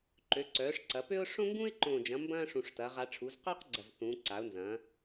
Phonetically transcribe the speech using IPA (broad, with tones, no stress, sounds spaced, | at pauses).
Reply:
ǃ ø˩˧ ǀ œː˩˧ ʂ ǀ ɐ˩˧ p ø˥ ʊ̯ ʂ õ˥ ŋ ɡ ũ˥ ɪ̯ ǃ õː˨˩ d͡ʒ ɐ̃˩˧ m b ɐ̃ː˥ ʂ ũ˨˩ ʂ t ɐː˩˧ ʁ a˩˧ ʈ͡ʂʰ u˩˧ z q œː˥ q ɡ͡ǀ ɐ˨˩ z θ ũː˩˧ ǀ a˩˧ ʊ̯ n z ɐ̃ː˩˧